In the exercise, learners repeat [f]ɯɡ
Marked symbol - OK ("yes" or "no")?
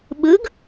no